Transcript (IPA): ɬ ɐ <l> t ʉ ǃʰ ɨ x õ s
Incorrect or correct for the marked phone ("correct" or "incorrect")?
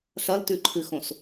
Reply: correct